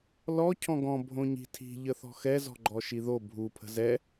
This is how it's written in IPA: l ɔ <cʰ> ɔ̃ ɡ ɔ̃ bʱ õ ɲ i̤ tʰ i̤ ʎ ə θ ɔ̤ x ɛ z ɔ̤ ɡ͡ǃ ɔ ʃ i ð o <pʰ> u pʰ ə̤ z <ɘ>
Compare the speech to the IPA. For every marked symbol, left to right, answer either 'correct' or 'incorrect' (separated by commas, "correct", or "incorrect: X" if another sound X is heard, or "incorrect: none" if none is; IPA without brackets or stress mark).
correct, incorrect: bʱ, incorrect: ɛ